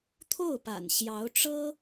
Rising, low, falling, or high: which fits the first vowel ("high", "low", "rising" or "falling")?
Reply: falling